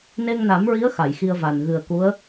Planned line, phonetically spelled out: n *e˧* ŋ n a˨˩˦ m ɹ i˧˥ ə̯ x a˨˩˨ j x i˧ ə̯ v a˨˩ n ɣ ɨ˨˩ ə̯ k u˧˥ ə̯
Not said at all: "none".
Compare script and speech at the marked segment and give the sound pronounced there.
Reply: e˧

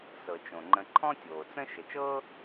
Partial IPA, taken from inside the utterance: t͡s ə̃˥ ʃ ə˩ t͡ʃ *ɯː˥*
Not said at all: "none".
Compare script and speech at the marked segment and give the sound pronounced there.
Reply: ɤː˥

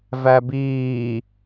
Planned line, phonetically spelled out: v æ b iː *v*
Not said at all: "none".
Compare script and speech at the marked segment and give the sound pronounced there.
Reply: none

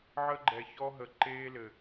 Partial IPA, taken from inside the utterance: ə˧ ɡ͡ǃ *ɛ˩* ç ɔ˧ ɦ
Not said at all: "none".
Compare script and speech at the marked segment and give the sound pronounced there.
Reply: ɛ˩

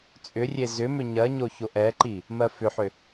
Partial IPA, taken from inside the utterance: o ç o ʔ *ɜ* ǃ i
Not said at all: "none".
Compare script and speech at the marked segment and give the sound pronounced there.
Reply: ɛ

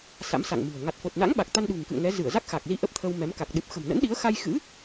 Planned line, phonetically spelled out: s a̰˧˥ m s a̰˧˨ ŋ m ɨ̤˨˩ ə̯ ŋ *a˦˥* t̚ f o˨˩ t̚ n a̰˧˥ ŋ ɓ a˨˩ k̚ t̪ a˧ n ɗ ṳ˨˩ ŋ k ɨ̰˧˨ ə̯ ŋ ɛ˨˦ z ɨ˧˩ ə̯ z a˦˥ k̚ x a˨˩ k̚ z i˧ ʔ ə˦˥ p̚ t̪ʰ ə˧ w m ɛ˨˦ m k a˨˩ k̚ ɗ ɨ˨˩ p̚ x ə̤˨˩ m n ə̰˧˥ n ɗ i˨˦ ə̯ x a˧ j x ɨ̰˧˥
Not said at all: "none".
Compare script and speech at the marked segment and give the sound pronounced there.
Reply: a˨˩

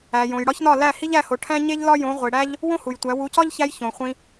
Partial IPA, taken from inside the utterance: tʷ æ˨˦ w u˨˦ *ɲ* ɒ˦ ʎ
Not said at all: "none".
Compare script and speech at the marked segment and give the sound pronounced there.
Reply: c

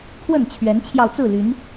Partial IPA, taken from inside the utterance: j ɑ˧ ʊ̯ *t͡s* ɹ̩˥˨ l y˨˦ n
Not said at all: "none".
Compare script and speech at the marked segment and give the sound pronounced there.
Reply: t͡s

